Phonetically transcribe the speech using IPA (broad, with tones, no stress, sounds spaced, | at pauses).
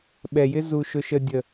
ɓ ɛ˨ j ɪ˦ z u˧ ʃ ʊ˧ ʃ ə˧ dʲ ə˨